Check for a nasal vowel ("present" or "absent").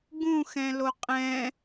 present